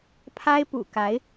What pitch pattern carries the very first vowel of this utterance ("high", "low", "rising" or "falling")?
high